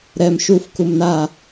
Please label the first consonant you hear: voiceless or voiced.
voiced